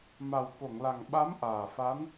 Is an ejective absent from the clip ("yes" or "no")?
yes